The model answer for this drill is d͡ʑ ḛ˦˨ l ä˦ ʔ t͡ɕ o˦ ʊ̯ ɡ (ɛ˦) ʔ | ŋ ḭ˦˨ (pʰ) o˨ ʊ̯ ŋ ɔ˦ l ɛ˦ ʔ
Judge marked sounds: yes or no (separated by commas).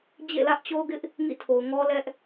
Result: no, no